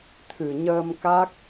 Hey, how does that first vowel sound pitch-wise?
low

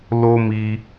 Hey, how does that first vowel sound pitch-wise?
high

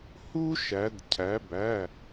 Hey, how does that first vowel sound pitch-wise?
high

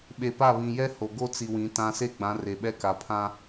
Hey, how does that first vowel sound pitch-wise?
low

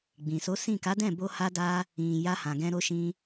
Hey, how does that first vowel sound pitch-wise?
low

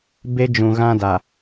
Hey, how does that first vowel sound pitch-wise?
high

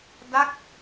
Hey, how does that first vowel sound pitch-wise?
falling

